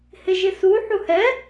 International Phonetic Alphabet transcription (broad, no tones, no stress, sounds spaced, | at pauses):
h ɪ ʒ ɪ s u ħ u h ɛ